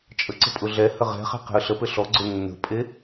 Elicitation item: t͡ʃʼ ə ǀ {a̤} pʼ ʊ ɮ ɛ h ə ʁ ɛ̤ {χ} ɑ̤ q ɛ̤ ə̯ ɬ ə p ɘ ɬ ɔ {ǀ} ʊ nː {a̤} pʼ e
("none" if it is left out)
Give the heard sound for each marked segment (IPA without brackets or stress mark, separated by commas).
ə̤, χ, ɡ͡ǀ, ə̤